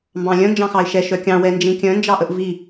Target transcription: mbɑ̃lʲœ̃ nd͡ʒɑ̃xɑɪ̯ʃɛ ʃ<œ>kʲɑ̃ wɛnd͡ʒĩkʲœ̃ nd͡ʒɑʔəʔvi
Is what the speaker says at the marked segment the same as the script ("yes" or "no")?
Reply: yes